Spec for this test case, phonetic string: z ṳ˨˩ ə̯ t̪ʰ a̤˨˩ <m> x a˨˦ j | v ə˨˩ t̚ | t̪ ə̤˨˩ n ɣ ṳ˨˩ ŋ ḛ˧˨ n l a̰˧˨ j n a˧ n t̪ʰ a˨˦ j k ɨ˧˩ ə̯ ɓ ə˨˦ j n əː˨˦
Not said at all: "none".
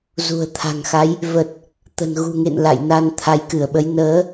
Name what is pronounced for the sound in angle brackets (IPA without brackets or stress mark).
ŋ